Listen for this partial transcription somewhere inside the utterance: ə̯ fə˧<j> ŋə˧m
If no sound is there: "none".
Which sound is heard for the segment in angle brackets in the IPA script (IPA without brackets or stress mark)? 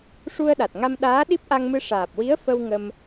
w